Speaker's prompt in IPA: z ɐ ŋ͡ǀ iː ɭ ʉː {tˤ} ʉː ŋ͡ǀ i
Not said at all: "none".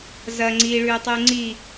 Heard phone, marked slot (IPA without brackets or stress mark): tˤ